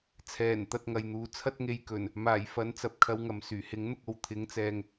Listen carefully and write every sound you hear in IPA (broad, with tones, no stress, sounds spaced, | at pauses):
t͡sʰ ɛː˨˩ n t̪ ɐ˨ t̚ ŋ ɐ˨ j n̪ uː˨˧ t͡sʰ ɐ˥ t̚ ŋ e˨˧ j k ɵ˨˩ n | m aː˨˩ j f ɐ˨˥ n t͡s ɐ˨ p̚ kʰ ɐ˧ w ŋ ɐ˨ m s yː˨˩ h ɪ˨˥ ŋ n̪ ʊ˧ k̚ o˨ w t̪ʰ ɪ˨˥ ŋ t͡s ɛː˨ ŋ